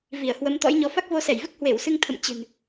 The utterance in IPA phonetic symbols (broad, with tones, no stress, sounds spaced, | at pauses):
v i˧˩ ə̯ h w ə˨˦ m t̪ ɔ̰˧˥ j ɲ ɔ˨˦ f a˦˥ k̚ v o˧ s ɛ˧˩ j v ɨ˦˥ k̚ h w e˧˩ w s ɨ˧ ŋ t̪ʰ ə̰˧˨ m t͡ɕ ɨ̤˨˩ n